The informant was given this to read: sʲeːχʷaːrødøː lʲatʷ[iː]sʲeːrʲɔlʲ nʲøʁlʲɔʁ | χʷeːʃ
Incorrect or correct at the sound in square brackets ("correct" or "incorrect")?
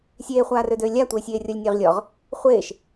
incorrect